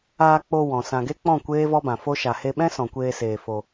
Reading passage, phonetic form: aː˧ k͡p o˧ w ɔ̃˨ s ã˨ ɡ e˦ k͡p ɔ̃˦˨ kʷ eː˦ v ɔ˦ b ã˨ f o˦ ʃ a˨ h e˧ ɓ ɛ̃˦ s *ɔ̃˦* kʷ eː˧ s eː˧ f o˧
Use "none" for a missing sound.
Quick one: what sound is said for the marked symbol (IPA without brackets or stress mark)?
ɔ̃˨